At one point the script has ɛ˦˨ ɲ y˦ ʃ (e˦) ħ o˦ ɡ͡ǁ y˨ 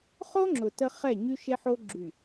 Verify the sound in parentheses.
correct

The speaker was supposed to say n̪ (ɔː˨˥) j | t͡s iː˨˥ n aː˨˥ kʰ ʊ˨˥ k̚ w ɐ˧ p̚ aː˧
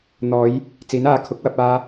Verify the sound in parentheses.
incorrect: ɔː˨˧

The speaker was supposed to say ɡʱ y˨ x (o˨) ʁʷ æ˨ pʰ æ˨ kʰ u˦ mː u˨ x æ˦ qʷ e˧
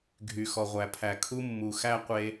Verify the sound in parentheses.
incorrect: ɔ˨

